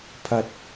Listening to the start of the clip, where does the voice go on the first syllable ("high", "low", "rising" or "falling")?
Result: low